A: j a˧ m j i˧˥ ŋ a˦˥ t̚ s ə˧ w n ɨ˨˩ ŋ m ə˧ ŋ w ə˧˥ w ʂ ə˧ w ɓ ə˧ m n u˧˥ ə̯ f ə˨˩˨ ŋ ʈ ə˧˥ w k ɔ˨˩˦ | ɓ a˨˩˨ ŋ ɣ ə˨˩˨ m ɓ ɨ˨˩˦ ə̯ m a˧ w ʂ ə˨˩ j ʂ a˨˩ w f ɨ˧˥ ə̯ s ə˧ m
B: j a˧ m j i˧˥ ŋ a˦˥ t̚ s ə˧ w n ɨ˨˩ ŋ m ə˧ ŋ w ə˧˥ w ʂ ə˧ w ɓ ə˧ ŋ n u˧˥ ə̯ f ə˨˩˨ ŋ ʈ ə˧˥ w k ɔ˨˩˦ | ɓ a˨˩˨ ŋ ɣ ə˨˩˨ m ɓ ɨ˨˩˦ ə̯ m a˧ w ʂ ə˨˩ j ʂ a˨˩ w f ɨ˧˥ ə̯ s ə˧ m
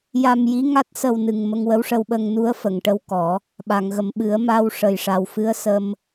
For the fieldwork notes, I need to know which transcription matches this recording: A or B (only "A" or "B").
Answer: B